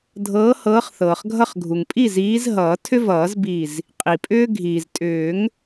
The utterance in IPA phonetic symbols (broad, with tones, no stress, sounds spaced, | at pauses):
dʱ ɤː˨˦ h ɤː˨˦ χ θ ɤː˩ χ ɡʱ ʌ˧˩ χ ɡʱ u˩ ŋ pʼ i˥˩ z iː˨˦ z ɦ ʌː˨˩˦ tʰ ʏ˦ v ʌː˨˩˦ z b i˧˩ z | qʼ i˩ pʼ ʏː˦ ɡʱ iː˩ z tʼ ʏː˨˩˦ ŋ